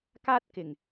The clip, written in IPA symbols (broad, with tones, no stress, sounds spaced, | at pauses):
k aː˥ t̚ k ɪ˨˩ ŋ